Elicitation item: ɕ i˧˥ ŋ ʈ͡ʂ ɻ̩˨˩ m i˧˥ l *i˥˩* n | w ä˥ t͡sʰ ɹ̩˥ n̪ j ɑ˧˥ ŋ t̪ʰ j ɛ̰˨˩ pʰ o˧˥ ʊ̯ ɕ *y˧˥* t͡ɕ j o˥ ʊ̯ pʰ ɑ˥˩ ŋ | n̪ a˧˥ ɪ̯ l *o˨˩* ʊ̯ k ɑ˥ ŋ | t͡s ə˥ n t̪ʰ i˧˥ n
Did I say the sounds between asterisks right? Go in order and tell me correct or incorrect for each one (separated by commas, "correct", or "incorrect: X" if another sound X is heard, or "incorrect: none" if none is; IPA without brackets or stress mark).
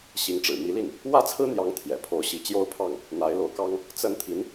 correct, incorrect: i˧˥, incorrect: o˧˥